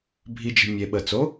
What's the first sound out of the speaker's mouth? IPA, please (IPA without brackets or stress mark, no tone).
bʱ